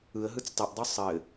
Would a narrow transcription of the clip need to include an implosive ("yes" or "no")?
no